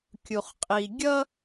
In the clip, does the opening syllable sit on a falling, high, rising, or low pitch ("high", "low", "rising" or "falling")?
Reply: low